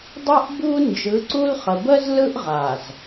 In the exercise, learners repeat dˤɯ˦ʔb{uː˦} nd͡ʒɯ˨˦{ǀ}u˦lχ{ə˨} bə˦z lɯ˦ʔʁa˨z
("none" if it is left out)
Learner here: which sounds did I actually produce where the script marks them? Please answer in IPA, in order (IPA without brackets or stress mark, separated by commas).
u˦, ǀ, ə˨